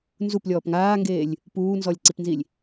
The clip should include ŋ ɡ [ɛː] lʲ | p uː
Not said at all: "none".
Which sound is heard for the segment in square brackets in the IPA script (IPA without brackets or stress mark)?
eː